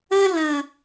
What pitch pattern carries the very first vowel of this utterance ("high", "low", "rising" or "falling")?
high